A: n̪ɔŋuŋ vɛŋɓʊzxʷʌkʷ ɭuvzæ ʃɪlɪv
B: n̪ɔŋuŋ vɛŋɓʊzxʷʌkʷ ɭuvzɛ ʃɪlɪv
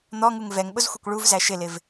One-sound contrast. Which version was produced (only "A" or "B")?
A